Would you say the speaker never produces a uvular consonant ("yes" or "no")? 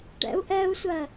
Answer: yes